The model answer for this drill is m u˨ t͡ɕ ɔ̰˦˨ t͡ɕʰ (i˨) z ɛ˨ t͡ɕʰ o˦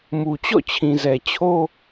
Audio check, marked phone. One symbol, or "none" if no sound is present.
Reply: ĩ˨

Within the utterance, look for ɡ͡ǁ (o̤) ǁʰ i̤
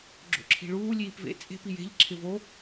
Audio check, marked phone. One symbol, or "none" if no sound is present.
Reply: o̰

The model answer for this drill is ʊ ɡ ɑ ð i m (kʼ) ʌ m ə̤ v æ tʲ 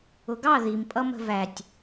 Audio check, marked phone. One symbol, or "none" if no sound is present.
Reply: pʼ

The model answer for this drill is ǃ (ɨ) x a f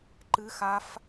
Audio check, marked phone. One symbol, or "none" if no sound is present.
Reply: ɨ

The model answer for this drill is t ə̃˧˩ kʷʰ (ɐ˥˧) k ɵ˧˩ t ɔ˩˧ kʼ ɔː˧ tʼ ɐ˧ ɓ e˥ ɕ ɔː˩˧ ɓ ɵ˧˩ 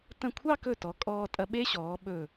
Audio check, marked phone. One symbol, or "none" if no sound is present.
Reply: ɑ˥˧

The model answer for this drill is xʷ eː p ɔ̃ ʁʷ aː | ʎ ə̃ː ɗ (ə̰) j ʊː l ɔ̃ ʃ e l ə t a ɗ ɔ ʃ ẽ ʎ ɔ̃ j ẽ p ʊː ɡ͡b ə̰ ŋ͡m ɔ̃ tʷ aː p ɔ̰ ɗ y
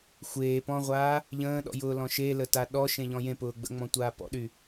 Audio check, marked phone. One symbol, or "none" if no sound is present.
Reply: ɔ̰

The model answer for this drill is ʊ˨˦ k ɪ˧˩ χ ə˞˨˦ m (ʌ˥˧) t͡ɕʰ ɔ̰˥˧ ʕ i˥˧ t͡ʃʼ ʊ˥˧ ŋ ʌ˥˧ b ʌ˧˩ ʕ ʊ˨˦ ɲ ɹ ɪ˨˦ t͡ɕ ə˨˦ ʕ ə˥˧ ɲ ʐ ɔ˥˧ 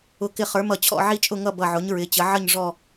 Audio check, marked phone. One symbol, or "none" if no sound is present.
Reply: ʌ˧˩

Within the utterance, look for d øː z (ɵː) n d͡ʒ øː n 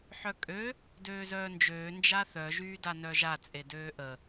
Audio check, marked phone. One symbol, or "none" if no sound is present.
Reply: œː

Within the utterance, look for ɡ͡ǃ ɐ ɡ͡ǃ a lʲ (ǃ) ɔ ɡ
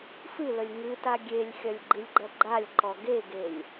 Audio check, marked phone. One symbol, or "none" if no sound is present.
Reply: ǃ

